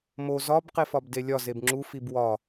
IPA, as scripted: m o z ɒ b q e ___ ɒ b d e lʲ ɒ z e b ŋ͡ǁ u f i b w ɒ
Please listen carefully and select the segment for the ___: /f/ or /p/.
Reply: f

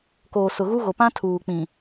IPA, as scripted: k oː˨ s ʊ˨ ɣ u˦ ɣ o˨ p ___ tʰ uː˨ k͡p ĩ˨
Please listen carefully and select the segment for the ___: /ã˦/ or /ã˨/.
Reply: ã˦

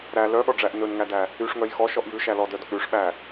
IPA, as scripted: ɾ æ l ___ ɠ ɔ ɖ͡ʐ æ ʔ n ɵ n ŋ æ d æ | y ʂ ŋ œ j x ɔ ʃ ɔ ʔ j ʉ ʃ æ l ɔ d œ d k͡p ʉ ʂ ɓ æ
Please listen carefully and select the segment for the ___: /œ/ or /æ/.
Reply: œ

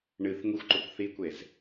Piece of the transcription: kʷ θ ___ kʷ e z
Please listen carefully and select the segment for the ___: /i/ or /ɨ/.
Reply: i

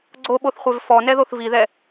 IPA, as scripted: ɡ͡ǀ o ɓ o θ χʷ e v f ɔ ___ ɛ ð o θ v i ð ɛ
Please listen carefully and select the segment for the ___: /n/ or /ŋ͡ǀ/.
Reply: n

